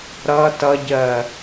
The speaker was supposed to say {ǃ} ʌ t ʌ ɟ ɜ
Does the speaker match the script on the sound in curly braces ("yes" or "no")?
no